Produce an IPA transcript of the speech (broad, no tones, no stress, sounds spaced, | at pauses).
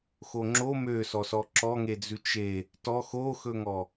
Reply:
x o ŋ͡ǁ o m ø s ɔ s ɔ ǁ ɔ ŋ e d͡z ʉ t͡ʃ e | t ɔ x o x ɵ ŋ ɔ